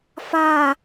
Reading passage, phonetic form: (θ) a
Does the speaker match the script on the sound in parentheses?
no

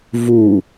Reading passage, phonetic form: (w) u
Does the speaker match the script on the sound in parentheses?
no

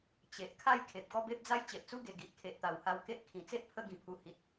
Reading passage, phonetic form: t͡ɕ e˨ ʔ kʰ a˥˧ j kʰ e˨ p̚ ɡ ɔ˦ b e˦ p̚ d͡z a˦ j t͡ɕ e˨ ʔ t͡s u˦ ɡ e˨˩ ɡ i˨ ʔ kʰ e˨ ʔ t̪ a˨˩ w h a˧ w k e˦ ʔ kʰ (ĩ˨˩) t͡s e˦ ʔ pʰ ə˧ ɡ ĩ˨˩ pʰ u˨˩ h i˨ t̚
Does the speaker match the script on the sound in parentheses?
yes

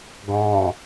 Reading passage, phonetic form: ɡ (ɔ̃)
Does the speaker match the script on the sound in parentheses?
yes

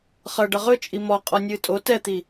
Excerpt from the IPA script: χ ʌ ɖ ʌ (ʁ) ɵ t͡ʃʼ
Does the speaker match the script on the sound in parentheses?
yes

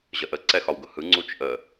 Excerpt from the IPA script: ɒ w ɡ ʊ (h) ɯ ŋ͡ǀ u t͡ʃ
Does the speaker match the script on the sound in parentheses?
yes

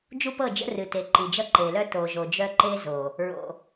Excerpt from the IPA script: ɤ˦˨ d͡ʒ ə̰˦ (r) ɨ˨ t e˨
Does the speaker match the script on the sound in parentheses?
yes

